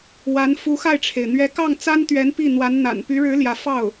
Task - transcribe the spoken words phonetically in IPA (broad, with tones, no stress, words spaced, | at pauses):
wa˧˥n fu˧˥xa˥˩ɪ̯ʈ͡ʂʰe˩ɪ̯ n̪ɥɛ˧˥kɑ˥˩ŋt͡sa˥nt̪ɥɛ˧˥n pi˥˩ n̪wa˧˥nn̪a̰˨˩n py˧˥ɻɻ̩˧˥ ljä˧˥fɑ˥˩ʊ̯